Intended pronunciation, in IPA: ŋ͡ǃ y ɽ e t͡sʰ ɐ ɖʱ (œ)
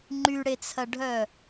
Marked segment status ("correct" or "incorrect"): correct